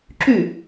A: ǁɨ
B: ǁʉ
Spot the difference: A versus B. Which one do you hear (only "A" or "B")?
B